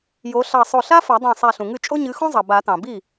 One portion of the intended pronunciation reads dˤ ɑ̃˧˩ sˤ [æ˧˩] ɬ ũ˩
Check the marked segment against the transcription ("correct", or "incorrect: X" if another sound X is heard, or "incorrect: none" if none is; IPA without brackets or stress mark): correct